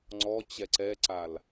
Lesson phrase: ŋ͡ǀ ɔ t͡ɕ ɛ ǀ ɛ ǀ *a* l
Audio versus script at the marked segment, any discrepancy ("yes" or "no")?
no